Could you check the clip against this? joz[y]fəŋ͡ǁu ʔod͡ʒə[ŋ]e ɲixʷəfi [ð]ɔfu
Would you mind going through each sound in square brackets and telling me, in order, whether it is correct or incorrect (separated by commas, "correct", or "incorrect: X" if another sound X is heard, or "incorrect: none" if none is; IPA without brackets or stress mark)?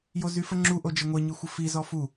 correct, incorrect: ŋʷ, incorrect: z